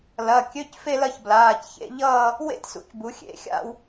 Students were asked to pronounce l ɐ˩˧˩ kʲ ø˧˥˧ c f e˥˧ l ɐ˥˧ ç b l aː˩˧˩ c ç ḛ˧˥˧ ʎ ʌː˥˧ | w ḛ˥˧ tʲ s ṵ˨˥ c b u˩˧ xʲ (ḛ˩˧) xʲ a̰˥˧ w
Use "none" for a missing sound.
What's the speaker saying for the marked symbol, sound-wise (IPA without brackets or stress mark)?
ḛ˩˧